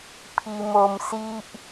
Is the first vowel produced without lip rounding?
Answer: yes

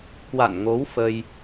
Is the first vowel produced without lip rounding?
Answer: yes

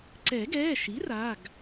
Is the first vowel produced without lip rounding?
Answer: yes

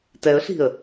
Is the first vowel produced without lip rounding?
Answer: yes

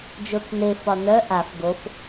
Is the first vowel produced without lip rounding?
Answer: no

